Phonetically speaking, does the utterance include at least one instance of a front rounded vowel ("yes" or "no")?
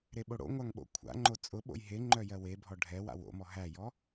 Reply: yes